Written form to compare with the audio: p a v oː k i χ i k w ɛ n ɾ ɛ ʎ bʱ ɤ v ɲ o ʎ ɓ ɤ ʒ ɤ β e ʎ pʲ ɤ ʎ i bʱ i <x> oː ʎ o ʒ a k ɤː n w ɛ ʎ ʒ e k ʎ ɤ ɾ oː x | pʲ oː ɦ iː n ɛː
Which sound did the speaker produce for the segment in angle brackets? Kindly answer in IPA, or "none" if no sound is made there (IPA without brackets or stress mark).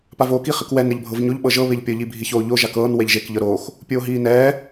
ç